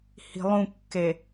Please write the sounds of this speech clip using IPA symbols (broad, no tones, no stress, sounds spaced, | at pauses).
h i̤ lˠ ũ kː e